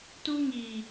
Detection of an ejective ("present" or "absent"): absent